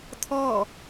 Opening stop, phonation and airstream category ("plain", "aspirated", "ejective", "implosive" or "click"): aspirated